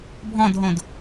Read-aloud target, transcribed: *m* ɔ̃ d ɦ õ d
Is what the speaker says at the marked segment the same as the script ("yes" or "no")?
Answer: no